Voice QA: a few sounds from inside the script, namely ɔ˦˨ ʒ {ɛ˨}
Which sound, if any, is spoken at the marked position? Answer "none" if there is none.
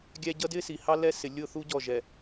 ɛ˨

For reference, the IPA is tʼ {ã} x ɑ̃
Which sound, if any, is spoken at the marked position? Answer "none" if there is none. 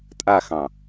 a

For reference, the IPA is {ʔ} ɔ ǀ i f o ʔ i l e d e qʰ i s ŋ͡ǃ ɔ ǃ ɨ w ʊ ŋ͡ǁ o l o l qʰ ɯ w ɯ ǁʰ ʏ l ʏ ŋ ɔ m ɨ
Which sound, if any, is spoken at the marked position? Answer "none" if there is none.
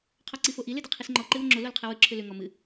qʰ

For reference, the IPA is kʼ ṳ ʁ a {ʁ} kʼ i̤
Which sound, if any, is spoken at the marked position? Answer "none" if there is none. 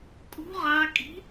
none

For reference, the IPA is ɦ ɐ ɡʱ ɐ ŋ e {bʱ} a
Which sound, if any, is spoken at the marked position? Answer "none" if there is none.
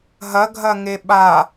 ɓ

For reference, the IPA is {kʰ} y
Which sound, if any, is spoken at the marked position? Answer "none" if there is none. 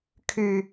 kʰ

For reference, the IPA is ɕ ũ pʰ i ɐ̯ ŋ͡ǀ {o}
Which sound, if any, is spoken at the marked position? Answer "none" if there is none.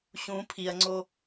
o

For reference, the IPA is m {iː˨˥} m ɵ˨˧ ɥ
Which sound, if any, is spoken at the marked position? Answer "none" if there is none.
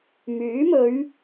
yː˨˥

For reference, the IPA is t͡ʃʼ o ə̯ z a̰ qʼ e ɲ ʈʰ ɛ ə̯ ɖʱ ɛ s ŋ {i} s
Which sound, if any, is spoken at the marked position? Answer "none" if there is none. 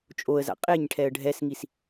i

